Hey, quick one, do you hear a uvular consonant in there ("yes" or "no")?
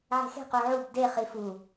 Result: yes